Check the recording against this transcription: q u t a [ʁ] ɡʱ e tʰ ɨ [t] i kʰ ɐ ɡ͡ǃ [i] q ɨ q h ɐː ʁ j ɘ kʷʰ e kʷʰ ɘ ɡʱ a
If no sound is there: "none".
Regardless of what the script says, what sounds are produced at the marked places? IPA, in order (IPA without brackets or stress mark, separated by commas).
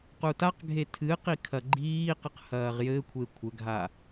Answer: q, q, iː